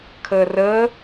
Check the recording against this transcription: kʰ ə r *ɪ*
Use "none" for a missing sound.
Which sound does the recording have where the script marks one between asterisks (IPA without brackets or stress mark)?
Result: ə